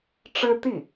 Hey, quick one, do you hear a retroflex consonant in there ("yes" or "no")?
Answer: yes